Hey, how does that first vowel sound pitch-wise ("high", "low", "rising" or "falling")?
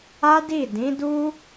high